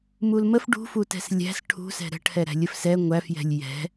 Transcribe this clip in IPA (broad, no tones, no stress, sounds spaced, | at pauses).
m u l m ə f ɖ ṳ f u t ɛ̤ s lʲ æ̤ s ʈʰ ṳ s ɛ̤ ɾ ə̤ ʈʰ ɛ ɾ æ̤ lʲ ə f s ɛ ŋʷ æ f j ɛ̤ lʲ j ɛ̤